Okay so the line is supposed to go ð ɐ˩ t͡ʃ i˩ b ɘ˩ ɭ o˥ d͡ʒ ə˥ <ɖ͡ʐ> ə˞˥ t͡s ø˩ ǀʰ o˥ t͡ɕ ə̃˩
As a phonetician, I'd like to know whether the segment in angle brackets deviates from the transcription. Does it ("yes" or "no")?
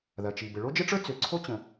yes